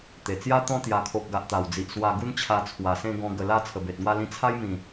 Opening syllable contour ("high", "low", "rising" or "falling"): low